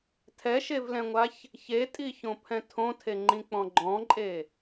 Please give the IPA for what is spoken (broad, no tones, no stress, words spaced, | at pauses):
tʰɛʃevlɛ̃ŋʷaç | çetʼiçõpʰɛ̃ tʰõtʰeŋ͡ǃĩk͡pɔ̃ ɡ͡ǃɔ̃ǃʼe